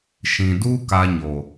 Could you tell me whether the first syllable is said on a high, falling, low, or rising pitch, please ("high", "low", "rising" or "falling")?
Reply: low